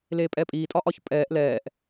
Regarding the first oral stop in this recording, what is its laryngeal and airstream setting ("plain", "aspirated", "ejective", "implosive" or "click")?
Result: ejective